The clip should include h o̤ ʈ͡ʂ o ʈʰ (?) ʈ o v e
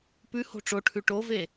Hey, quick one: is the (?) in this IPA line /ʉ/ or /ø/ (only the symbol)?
ʉ